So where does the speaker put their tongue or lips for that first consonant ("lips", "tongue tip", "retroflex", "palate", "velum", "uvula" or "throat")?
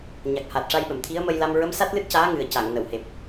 palate